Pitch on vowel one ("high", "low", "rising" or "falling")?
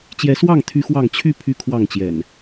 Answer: rising